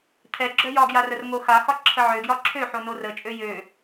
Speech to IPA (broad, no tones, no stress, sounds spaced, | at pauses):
t̪ʰ ɛ ɡ͡ǁ œ j ɒ ɡ j a r ə r ŋ o x a x ɒ ǁʰ ə ʕ ø ɡ j ɒ ǁʰ ø ħ o n o r ə t͡ʃʼ ø j ø